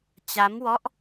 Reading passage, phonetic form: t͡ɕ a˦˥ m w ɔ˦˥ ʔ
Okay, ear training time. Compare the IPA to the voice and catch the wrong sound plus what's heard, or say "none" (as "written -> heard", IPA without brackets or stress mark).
none